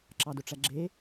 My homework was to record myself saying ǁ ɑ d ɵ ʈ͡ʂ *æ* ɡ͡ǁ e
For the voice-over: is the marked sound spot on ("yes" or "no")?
yes